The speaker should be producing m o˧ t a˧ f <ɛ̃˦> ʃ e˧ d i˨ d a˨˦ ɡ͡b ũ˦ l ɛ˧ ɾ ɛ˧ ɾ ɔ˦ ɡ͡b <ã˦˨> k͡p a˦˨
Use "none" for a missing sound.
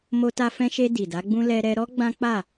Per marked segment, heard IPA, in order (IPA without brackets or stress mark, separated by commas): ɛ̃˧, ã˦